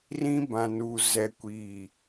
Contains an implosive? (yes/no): no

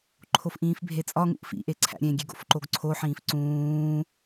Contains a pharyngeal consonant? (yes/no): yes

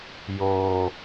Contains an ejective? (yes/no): no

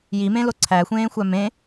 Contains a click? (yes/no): yes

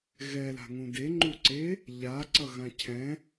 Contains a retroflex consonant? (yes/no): no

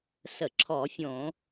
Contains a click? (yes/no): yes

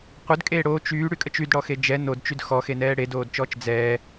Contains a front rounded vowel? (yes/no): yes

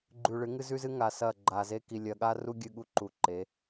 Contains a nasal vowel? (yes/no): no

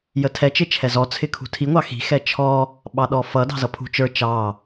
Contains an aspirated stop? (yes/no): yes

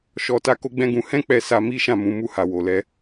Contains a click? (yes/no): no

